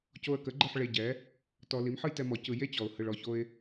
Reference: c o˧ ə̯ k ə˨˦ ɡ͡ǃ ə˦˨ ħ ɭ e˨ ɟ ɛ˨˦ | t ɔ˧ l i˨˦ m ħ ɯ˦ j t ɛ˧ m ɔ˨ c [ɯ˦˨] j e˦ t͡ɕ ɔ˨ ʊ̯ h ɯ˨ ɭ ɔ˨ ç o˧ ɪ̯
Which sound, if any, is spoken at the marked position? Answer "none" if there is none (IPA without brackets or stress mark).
ɯ˨